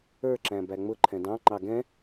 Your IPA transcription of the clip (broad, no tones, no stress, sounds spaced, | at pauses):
ə˞ ǁ æ̃ b æ ŋ͡m ʊ ǃʰ ɛ̃ d ɑ̃ ŋ͡ǃ ɑ ɡ ɛ̃